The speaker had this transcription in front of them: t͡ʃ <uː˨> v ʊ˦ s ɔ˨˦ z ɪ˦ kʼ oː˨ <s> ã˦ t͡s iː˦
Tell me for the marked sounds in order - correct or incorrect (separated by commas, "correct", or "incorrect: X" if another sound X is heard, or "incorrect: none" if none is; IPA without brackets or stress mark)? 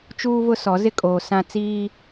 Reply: incorrect: uː˦, correct